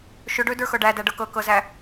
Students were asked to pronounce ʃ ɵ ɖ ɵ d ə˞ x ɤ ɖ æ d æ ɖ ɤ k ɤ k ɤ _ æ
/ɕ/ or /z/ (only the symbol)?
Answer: z